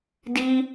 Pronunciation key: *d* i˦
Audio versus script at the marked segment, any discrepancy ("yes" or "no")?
no